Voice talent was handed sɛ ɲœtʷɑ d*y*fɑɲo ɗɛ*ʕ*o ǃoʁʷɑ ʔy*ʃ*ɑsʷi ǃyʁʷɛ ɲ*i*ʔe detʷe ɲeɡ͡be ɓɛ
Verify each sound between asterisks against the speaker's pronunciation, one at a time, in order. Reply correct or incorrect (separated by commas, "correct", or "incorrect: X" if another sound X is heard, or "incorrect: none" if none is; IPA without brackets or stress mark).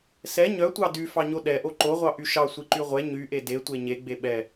correct, incorrect: ʔ, correct, incorrect: y